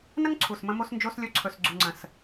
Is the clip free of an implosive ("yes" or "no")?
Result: yes